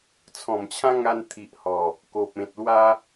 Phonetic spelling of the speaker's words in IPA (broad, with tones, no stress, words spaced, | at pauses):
t͡sʰɔ̃˨˩mt͡ɕʰã˦ŋa˧n t̪ʰi˨ʔhɔ˨˩ | ko˨p̚ẽ˨t̚lwa˦